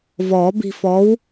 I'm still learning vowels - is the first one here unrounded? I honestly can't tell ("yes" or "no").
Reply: no